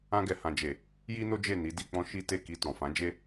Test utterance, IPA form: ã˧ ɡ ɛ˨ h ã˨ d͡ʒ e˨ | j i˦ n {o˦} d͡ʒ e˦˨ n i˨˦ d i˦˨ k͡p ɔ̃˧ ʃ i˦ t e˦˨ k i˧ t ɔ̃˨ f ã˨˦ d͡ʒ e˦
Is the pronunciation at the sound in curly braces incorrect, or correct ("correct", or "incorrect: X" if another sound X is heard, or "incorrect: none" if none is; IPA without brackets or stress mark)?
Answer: correct